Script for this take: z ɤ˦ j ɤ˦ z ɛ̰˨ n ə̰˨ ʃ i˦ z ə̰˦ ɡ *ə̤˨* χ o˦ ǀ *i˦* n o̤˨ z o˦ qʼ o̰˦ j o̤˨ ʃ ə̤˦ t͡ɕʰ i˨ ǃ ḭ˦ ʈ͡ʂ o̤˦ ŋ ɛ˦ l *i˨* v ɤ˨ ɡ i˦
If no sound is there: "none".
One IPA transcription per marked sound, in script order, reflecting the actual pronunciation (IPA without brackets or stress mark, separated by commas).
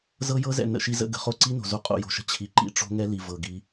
ə̤˨, i˦, i˨